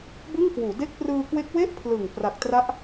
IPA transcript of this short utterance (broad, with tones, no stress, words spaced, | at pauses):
bɯ˥˩ŋkwuː˩˦de˥˩k̚ prɯː˧kwe˦˥k̚ we˥˩ʔpʰlɯ˨˩ŋ pra˨˩k̚tra˦˥ʔ